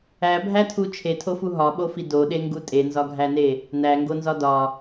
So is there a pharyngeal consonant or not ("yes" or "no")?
no